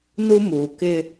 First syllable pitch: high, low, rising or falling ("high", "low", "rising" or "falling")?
high